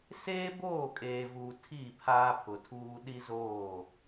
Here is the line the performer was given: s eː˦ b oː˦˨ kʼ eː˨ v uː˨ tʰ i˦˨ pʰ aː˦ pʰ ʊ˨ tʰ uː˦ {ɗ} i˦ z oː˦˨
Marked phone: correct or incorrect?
correct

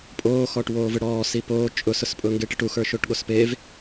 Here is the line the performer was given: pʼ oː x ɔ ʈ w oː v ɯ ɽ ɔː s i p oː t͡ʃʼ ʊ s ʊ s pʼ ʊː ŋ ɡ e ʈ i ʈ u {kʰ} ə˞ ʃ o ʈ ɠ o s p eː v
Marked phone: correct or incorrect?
incorrect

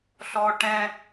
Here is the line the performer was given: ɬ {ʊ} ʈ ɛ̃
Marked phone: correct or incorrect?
incorrect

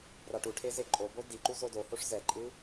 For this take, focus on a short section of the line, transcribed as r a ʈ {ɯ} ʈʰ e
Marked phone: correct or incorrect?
incorrect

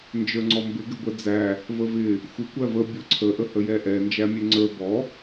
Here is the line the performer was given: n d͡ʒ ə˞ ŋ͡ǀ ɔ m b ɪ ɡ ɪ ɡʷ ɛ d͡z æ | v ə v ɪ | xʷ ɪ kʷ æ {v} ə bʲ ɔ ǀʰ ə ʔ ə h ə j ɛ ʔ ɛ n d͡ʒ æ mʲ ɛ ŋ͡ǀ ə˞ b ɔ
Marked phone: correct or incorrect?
correct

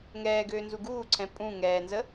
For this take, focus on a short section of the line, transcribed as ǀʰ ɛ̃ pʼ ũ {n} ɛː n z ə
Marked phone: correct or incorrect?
incorrect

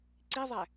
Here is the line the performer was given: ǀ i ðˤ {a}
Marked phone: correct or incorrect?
incorrect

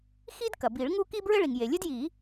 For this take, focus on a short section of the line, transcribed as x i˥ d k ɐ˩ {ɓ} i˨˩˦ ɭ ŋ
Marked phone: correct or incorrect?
incorrect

